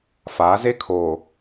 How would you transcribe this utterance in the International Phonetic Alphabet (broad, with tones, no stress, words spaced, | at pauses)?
faː˨˦ze˦kʰoː˨